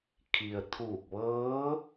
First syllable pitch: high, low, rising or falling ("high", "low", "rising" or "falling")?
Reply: low